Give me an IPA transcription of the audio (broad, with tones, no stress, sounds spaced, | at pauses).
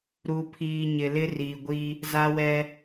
ɾ u˨ pʰ iː˨ ɲ ɪ˨ l ɪ˦ r iː˨ ɡʷ i˦ | z a˦ w ɛ˦